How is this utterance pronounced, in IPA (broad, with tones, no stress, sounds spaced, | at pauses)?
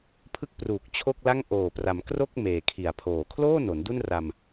pʰ ɯ˥˩ k̚ p r uː˨˩ k̚ t͡ɕʰ o˥˩ k̚ l a˥˩ ŋ ʔ oː˨˩ p r a˩˦ m k r o˥˩ k̚ m eː˨˩ kʰ i˨˩ a̯ pʰ oː˨˩ kʰ l oː˥˩ n o˩˦ n d u˥˩ n r a˧ m